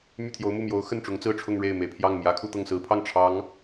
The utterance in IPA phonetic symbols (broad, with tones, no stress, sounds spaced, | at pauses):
m y˥˩ t̪ʰ j o˧˥ ʊ̯ m u˥˩ m j o˧˥ ʊ̯ x ə˥˩ n ʈ͡ʂ ʊ˧˥ ŋ t͡s ɹ̩˥˧ ʈ͡ʂʰ ʊ˥˧ ŋ ɻ e˥˩ ɪ̯ m e˨˩ ɪ̯ pʰ j ɑ˥˩ ŋ m j ä˧˥ kʰ u˥˧ t̪ ɤ˥˩ ŋ s ɹ̩˧˥ pʰ ɑ˥˩ ŋ ʈ͡ʂʰ ɑ˧˥ ŋ